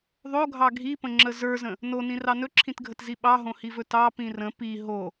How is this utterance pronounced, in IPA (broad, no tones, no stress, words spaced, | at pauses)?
ðˤoɡʱɑ ɡʱipə̃ŋ͡ǁə zə˞zə̃ | nonĩrɑ nɵǁʰĩtɡʱətzi ɓɑɦõhivɵ tɑpĩ rə̃ pi ɦo